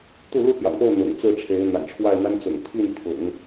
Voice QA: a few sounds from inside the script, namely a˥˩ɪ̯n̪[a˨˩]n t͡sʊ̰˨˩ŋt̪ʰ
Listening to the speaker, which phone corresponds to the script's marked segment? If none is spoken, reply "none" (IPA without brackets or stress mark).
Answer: a˥